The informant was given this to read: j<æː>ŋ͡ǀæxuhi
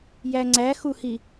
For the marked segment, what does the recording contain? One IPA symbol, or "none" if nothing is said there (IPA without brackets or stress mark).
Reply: æ